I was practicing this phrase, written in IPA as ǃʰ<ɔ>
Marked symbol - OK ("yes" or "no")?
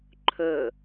no